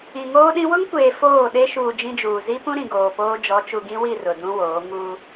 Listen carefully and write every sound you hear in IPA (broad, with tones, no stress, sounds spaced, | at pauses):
ĩ˨ ŋ oː˦ ɗ ĩ˦ w ʊ˦ ŋ kʷ eː˨ f oː˦˨ ɗ e˦ ʃ uː˨ d͡ʒ ĩ˦ d͡ʒ uː˨ z i˦ p ũ˦ ɾ ĩ˨ ɡ oː˨ p oː˦ d͡ʒ ɔ˨˦ t͡ʃ u˨ ɡ ĩ˦ w i˦˨ r ʊ˨ d ũ˦ w oː˨˦ ŋ u˦